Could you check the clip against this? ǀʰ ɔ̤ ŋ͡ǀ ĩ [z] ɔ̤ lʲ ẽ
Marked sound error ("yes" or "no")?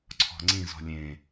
no